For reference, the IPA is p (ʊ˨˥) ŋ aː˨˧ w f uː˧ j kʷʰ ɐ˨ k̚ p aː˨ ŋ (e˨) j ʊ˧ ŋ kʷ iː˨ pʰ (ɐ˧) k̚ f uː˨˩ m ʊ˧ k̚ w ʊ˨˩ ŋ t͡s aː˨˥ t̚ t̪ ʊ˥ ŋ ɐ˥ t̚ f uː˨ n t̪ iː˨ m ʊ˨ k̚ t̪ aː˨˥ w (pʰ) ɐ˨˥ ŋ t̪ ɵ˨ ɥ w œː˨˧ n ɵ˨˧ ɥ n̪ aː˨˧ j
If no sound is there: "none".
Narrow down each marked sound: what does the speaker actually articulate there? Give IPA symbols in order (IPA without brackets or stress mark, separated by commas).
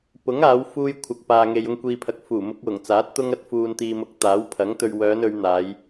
ʊ˨˥, e˨, ɐ˨, pʰ